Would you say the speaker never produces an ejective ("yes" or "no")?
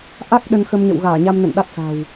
yes